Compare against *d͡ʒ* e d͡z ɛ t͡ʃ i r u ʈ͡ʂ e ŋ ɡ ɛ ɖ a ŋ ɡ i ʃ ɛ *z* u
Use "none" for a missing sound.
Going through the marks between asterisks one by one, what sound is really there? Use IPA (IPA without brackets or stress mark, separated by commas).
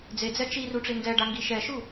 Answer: d͡z, ʃ